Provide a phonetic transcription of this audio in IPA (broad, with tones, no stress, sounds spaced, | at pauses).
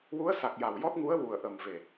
w u˧˥ ə̯ s a˨˩ k̚ j a˨˩ w j ɔ˦˥ t̚ ŋ u˧˥ ə̯ w u˨˩ ə̯ ʔ ə˨˩ m v e˨˩